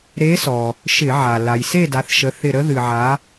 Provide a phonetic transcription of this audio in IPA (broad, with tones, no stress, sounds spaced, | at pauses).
ɾ e˧˥ s ɔ˩ | ʃ ɪ˧˩˧ ʕ a˩ l a˩ j s e˥˨ d a˩˧ θ ʃ ə˩˧ θ ɪ˧˩ ɾ ə˧˥ ð ɨ˩ ʕ a˩˧